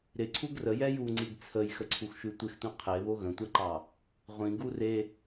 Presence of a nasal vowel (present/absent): present